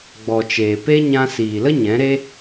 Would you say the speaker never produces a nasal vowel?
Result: no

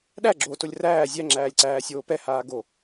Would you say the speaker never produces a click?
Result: no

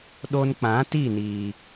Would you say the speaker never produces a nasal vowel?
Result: no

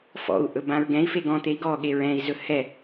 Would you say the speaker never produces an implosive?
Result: no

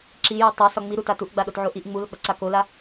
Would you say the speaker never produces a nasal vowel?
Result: yes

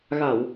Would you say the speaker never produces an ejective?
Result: yes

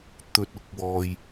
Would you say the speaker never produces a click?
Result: yes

